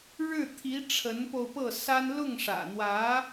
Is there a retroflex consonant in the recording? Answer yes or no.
yes